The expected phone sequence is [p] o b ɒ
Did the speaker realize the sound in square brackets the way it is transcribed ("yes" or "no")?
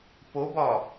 yes